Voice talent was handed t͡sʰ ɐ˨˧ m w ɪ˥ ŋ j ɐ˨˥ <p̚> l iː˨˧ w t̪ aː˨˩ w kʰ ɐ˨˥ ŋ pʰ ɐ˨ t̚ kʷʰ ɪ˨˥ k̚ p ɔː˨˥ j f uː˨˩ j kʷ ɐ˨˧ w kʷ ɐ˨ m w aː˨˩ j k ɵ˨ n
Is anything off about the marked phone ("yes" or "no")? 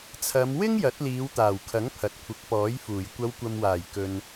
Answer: yes